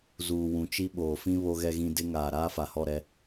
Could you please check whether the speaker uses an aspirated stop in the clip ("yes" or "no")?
no